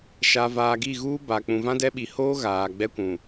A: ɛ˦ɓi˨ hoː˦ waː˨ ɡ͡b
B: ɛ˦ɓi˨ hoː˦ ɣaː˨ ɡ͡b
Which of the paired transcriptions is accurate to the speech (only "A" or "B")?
B